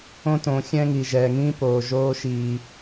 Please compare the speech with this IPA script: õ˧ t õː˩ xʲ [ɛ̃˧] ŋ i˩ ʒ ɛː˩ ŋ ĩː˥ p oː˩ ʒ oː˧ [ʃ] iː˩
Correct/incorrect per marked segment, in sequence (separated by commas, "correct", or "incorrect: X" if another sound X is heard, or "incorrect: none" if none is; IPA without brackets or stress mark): correct, correct